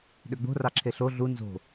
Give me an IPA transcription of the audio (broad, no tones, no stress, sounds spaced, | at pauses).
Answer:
ɗ ø ɡ͡b o̤ r ɑ ǁʰ e ɬ o ɮ u n z o̤